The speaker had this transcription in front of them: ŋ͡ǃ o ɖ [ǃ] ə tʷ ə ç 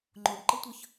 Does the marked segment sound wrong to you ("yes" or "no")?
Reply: no